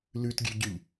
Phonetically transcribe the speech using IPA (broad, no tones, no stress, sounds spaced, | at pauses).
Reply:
l ʉ t ɡʲ ʉ ɟ y ʎ